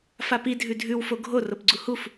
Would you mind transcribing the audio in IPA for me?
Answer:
f a p i dʱ ʉ dʱ ʉ w f o ɡʱ o r o p ɡ͡ǀ u h u f

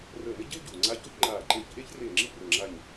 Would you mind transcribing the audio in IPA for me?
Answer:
r əː˧˩ n ə˥ ɟ e˥ w ɟ uː˩ ŋ͡ǀ a˧˥ ç o˥ ç ŋ͡ǃ aː˧˩ ǃ e˧˩ ç ʔ e˥ ç r e˧˩ ŋ͡ǁ i˥˩ r əː˧˩ ŋ͡ǁ a˧˩ ɲ

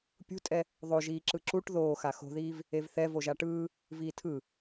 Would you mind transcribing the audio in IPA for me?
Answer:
pʲ ṳ tʼ ɛ | ðˤ o ʒ iː ǁ ɯ ǁ u ʈ ð oː x a x o̤ ð iː v | e v θ ɛ v o ʒ a ʈ ɯː | v iː tʰ ɯ

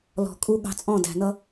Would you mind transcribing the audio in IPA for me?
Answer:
l ɔ̤˨ kʼ u˦ ɠ ɑ̤˧ t͡sʼ ɔ̃˦˨ d æ̤˨ n ʌ˦

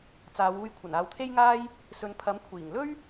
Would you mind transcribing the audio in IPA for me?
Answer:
t͡s aː˨˧ w uː˧ j kʷʰ ɐ˨˩ n aː˨ w t̪ʰ e˥ j ŋ aː˥ j | s ɵ˨˧ n pʰ ɐ˨˥ m kʷʰ iː˨˩ ŋ l ɵ˥ ɥ

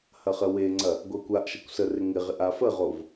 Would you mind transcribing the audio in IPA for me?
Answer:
h ɐ χ ə w e ŋ͡ǀ ɐ | ɡʷ a kʷ a ʔ ʃ ɐ kʷ s ə r ɪ ŋ ɪ ʁ ɪ ʔ a f ə ʁ o v

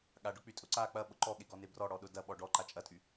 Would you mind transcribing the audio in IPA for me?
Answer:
ɠ a ɖ ʊ k͡p y tʼ ʊ ǀ a k͡p ɐ ɓ ʊ ǃ ɔ ɠ e ɡ ɔ n e b r ɔ ɽ ɔ ɗ ʊ d ɐ ɓ ɔ ɖ ɔ ǃ a t͡ʃʼ ɐ tʼ y

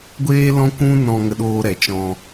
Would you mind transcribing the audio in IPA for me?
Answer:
ɡʷ eː˦ l ɔ̃˦ kʷ ũ˦ n ɔ̃˧ ŋ ə˧ ɗ oː˧ ɾ ɛ˨ t͡ʃ ɔ̃˧

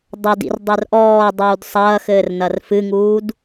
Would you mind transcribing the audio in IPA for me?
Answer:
dˤ ɐ d ḭ r dˤ ɛ r ʔ ɔː dˤ uː d sˤ ɐː x ɘː r n ɐ r f ɨ ŋ uː d

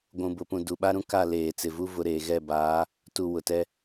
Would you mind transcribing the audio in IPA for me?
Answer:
ɡʷ ũ˨ b ʊ˨ p ũ˨ d u˨ ɓ a˦ ɾ ũ˦ k a˦˨ l eː˨ t͡s ɪ˨ v u˦ v ʊ˨ ɾ eː˨ ɣ ɛ˦˨ b aː˨˦ | t u˨ w ʊ˨ t ɛ˦

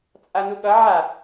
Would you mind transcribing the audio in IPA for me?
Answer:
t͡sʼ a n u ɠ ʌ ʕ a

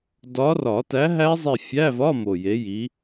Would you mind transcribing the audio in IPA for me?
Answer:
d ɒ˨˦ r ɒ˨˩˦ t æ˨˦ ɦ æ˦˥ zˤ e˦˨ fʲ æ˧˥˧ v ɒ˧˥˧ m o˨˩ j e˨˦ j i˨˦

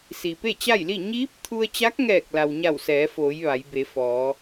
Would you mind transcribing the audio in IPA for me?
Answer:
s i˩ p e˥˨ t͡ɕ a˥˨ j l i˥˨ ɲ iː˧˥ p̚ t̪ʰ u˧ ə̯ t͡ɕ a˧˥ k̚ ŋ ɛː˧˩ k̚ l a˩ w ɲ a˧˩ w s ɛː˩˧ f oː˩˧ j ʋ a˩˧ j b e˩˧ f ɔː˩˧

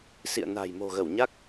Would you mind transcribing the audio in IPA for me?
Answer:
s ḭ˧˨ ə̯ n a̤˨˩ j m o̤˨˩ ɣ ə˧˩ w ɲ a˦˥ k̚

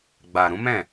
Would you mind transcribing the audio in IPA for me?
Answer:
ɡ͡b a˨ ɾ ũ˨˦ m ɛ̃˦˨

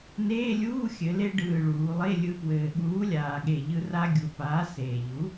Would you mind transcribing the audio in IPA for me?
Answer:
n eː˧˥˧ lʲ uː˧˥˧ xʲ ɘ˩˧ l e˧ ɖ ɯː˨˩ ɭ uː˩˧ lˠ e˧˥˧ lʲ ɯ˧ p w ɘː˨˩ ɠ uː˨˥ lʲ aː˨˩ ɠ e˨˩ ʎ ɯ˧ r a˧ ɡʲ u˨˩ p aː˨˥ s eː˨˩ ʎ u˨˥

